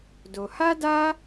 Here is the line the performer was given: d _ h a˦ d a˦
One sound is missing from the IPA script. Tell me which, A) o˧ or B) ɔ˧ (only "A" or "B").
A